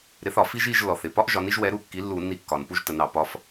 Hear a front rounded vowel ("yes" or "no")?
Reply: no